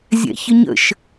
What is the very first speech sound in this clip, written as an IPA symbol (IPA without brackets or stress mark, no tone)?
zʲ